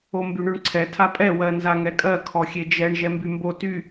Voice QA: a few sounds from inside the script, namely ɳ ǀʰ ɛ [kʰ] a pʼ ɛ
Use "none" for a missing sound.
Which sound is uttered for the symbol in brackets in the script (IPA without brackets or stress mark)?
tʰ